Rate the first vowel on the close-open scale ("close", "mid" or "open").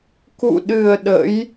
close